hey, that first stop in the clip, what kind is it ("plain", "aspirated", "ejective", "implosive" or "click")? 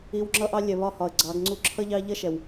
click